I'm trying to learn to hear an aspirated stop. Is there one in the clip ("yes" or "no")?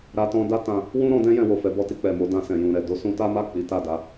no